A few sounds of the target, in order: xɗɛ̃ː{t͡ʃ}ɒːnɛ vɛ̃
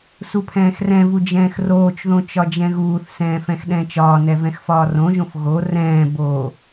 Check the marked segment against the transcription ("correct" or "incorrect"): correct